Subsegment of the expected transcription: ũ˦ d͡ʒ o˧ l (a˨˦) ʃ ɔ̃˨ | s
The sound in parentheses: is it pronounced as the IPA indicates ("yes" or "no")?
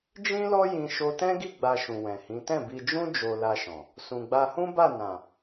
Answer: no